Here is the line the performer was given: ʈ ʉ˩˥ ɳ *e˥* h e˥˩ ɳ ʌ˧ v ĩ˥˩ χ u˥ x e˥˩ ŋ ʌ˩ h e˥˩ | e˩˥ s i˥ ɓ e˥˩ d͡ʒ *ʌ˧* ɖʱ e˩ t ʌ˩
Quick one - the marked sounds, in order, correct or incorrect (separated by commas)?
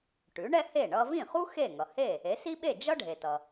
incorrect, incorrect